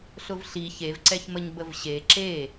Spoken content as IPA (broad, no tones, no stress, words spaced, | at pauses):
ɬʊvɬi çevǀɛçməɲ bəvɕe ǁe